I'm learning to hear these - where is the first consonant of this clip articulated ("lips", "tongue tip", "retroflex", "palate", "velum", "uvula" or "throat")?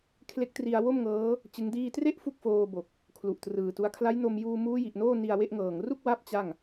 velum